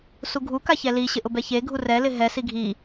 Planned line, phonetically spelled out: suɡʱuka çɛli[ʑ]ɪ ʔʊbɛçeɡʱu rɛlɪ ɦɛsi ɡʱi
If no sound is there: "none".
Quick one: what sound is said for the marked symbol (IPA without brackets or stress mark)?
ɕ